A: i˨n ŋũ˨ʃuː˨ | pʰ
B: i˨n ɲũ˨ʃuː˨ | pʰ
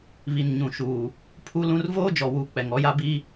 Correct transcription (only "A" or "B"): B